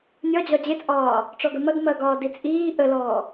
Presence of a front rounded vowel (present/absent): absent